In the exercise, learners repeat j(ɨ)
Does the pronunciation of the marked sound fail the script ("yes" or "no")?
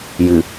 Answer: no